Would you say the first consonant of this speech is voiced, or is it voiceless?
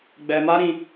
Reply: voiced